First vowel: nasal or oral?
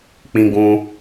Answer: nasal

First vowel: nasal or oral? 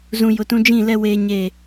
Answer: nasal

